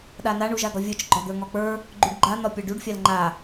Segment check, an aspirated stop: absent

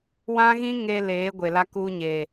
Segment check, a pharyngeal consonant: absent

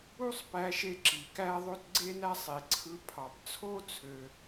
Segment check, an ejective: absent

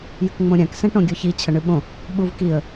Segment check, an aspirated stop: present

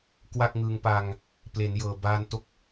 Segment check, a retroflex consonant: absent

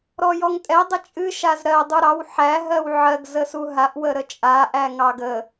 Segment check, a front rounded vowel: absent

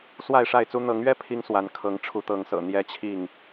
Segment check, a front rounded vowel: absent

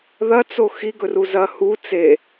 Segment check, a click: absent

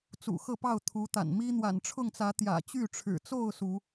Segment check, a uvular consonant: absent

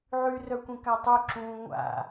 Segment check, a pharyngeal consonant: present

